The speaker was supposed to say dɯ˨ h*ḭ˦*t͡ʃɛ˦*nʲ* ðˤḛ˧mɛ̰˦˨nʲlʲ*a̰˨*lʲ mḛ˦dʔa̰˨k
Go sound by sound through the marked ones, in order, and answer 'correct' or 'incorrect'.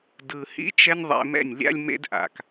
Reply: correct, correct, incorrect

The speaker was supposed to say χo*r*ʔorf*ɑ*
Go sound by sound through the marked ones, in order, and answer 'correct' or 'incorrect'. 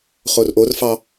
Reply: correct, correct

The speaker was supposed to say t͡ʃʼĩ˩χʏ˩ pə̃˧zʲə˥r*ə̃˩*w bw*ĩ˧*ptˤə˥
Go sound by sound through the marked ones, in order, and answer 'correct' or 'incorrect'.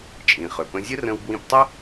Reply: incorrect, correct

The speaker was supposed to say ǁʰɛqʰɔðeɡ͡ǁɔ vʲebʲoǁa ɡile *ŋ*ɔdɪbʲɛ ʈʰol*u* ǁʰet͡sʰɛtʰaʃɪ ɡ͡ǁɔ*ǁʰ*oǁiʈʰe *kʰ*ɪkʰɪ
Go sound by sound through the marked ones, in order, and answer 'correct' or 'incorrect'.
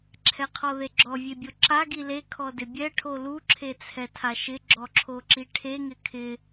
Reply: incorrect, correct, correct, incorrect

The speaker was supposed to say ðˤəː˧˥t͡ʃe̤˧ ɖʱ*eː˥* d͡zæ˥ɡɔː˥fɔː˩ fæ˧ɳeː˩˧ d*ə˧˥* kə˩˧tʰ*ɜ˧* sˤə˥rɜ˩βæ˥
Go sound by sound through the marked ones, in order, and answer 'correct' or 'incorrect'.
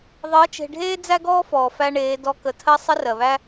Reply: correct, incorrect, correct

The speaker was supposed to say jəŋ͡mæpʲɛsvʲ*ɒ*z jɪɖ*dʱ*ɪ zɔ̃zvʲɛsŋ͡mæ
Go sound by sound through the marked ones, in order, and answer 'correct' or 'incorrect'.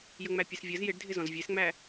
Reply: incorrect, correct

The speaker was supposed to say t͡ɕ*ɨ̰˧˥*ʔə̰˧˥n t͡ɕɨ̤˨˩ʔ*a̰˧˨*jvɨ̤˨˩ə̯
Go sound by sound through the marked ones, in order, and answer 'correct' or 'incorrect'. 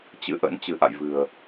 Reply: correct, correct

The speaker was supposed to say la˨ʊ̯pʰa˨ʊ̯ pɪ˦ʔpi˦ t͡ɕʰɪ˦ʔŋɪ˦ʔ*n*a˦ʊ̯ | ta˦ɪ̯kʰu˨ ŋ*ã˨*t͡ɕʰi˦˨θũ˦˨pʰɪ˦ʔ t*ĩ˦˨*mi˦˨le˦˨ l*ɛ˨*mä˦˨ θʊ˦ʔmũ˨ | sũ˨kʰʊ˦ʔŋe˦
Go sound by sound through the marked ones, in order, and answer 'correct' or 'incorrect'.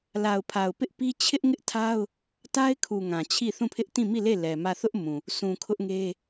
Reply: incorrect, correct, correct, correct

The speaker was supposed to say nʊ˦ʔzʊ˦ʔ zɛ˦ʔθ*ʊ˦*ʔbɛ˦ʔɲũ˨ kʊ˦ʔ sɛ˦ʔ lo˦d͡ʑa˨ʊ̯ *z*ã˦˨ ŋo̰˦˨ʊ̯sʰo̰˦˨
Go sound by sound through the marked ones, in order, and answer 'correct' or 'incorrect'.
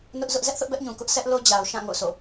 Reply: correct, incorrect

